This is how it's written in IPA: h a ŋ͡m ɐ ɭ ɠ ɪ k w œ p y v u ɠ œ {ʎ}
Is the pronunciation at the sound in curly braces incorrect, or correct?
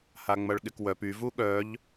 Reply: correct